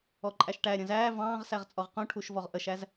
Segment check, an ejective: present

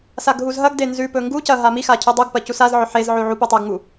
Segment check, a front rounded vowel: absent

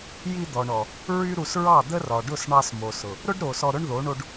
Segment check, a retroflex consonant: present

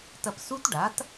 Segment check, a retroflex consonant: present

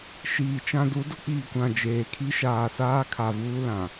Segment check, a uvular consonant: absent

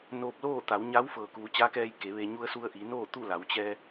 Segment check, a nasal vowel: absent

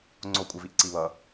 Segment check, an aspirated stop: absent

